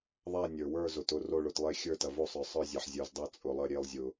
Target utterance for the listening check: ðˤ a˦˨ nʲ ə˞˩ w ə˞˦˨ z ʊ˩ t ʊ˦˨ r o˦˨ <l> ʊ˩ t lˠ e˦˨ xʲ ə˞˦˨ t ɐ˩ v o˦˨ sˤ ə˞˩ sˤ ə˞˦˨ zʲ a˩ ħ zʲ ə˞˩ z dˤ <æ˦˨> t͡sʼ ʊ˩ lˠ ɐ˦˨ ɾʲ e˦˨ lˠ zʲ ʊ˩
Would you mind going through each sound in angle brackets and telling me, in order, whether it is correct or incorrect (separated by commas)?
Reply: incorrect, incorrect